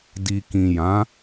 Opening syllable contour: low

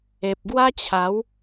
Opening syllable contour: low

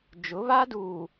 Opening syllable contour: rising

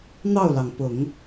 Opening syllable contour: falling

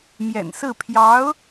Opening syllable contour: low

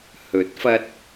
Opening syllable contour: rising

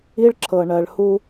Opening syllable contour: high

